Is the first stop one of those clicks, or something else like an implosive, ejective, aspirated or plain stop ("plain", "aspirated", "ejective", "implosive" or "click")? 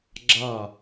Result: click